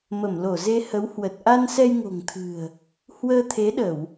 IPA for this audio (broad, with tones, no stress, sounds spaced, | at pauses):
m ə˧˩ m l o˧˩ z e˧ h ə˨˦ w h w ə˨˩ t̚ ʔ a˧ n s ɛ˧ j ŋ o̤˨˩ ŋ t̪ʰ ɨ̤˨˩ ə̯ | h w əː˧ t̪ʰ e˨˦ ɗ ə˧˩˨ w